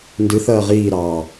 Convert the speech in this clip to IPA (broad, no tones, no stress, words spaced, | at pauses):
ndɨθɐː ʁiːɾɑː